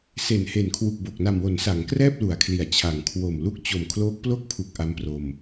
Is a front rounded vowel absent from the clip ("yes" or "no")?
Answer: yes